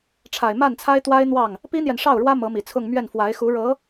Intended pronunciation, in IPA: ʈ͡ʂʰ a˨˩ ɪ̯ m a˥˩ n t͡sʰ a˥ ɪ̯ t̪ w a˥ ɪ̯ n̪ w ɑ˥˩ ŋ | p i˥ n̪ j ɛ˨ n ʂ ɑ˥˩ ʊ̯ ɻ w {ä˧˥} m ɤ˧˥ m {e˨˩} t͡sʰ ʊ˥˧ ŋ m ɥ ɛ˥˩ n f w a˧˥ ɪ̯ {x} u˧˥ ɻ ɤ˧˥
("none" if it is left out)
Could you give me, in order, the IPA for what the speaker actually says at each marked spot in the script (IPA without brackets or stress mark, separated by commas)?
ä˥, i˨˩, x